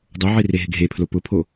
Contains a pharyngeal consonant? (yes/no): yes